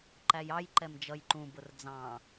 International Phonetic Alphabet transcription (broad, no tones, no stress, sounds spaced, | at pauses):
ǃ æ j ɑ j ǃ ɛ m d͡ʒ ʌ j ǃ ũ b ʊ r d͡z ɑ̃